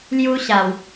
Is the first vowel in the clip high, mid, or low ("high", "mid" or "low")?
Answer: high